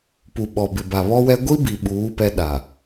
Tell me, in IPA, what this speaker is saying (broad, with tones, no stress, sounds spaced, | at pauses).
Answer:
p u˨ ɓ ɔ˨ b ɪ˨ b a˨ β ɔ˦ w ɛ˦ ɡʷ i˦ b i˨ ɓ uː˨˦ p ɛ˦ ɗ a˨